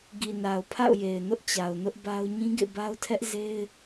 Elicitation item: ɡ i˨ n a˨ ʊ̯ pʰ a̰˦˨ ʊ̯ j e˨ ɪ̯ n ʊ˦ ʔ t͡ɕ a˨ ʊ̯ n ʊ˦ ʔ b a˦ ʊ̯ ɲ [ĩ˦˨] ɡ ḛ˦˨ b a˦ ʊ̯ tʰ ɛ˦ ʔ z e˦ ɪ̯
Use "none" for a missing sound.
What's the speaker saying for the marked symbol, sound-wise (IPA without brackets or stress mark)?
ĩ˦